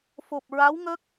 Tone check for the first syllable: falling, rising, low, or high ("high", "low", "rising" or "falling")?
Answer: low